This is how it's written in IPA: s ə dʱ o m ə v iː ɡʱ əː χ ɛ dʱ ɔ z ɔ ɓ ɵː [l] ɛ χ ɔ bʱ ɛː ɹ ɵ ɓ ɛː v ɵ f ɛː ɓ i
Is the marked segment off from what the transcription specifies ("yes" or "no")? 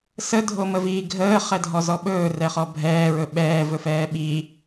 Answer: yes